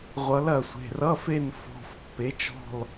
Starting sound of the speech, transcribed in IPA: ʁʷ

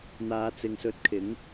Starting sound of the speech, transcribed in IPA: n̪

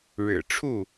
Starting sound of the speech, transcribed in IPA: ɻ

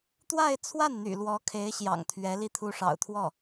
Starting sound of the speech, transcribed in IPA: t̪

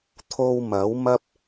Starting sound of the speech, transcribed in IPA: t̪ʰ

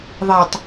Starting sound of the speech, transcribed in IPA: ðˤ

